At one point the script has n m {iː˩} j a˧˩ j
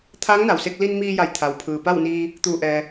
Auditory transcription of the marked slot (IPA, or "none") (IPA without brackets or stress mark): iː˧